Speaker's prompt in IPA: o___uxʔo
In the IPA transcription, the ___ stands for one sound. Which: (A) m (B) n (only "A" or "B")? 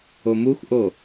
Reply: A